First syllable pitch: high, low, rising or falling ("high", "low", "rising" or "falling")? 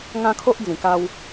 high